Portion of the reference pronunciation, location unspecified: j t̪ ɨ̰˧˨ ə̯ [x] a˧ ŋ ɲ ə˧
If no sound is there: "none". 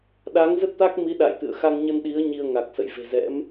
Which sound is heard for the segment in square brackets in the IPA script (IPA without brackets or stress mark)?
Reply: x